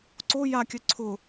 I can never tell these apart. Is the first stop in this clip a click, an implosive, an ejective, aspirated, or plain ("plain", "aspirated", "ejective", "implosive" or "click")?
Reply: click